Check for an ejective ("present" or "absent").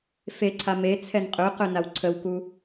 present